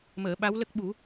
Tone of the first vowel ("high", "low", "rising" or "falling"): low